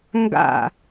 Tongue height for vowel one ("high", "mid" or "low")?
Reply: low